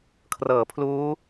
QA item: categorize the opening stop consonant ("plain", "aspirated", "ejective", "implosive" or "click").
aspirated